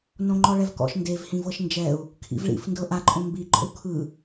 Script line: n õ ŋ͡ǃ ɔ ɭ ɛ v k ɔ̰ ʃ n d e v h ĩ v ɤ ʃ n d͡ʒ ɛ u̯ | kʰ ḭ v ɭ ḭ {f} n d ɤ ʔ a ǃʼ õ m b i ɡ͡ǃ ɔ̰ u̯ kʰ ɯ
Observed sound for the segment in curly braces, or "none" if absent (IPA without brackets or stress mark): f